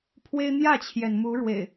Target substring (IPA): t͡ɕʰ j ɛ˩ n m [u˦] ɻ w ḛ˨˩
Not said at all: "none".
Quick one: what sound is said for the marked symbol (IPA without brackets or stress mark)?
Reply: u˨˦